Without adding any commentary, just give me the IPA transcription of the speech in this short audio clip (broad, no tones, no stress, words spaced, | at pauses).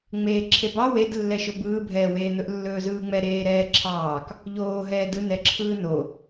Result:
ŋ͡meːǁʰebɑ wed lːɛʃɵbɯː bʱɛːweːn̪ɵʔ lːɵːzɯːŋ͡mɛ ɾeːɾɛːǁʰɑːk | ʎoː ɦɛːdɯ nɛǁʰɯːno